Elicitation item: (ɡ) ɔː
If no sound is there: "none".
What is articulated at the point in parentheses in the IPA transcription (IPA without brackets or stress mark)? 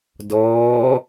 d